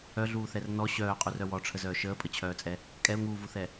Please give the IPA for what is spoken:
œɮuːθɛr nɔ ɕœːqʼurœ wɔʈ͡ʂʰəzœː ʃəːpʼət͡ɕʰœːt͡sʼɛ | kʼɛʊ̯ŋuːvuθɛ

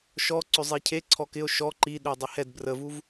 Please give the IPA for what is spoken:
ʃɔ ǀʏzˤicʰe ǀʰɔkɪo̯ ʃɔ ǃiɗø dˤehɛd brəvuv

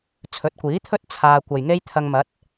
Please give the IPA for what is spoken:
t͡sʰɵ˨˥t̚kʷiː˨˥t̪ʰɵ˥t̚ t͡sʰaː˧ kʷɐ˨jŋe˥jt̪ʰɐ˧ŋmɐ˨˥t̚

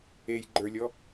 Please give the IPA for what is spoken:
ejɡ͡ǃə˞lʲɔ

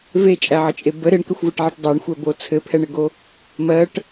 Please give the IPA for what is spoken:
vet͡ʃʼæʕət͡ʃʼe bə ɾeɳkɘxʷveʈʕɛʈ dˤæɳxʷɛbo t͡sʰɘpʰɛɳɘɡo | mɜʈ

